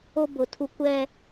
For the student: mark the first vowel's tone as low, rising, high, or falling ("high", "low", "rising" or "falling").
high